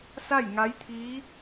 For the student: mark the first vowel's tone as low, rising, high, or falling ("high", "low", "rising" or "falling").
falling